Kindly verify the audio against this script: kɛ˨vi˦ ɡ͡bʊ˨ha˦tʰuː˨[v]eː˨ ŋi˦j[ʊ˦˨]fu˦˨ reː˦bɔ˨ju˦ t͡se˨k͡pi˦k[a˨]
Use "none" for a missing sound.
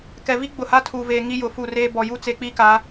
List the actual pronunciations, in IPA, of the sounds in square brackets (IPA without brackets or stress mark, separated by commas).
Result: v, ʊ˨, a˨˦